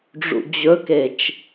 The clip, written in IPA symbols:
ɖ͡ʐṵd͡ʑɵket͡ʃ

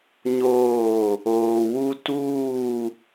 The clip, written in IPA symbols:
ɲoː˦˨ | oː˨wu˦tuː˦˨

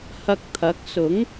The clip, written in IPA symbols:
hɐ˧k̚t̪ʰɐ˨˥k̚sʊ˨˥ŋ

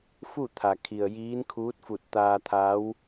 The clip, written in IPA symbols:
fu˥˨t̪ʰa˩kʰi˩ə̯ jiː˧˥nkʰuː˧˥t̚fu˧˩t̚ t̪aː˧t̪ʰa˧˥w

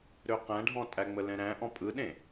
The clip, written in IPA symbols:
ɾøqæ̃ɖʱɔ̃ tʼæŋ͡məlɛ̃ɾæ̃ ʔɔ̃pʼɯɗẽ

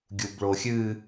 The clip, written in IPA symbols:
ɡʲubɭoxʲɨ

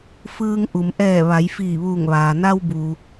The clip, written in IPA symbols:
fɯː˧ŋ ʔu˩mʔɛː˧˩ ʋa˩˧jfiː˧˩ʋuː˧˩ŋʋaː˩ na˧wbuː˩

